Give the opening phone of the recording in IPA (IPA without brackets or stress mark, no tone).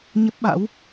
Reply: ɲ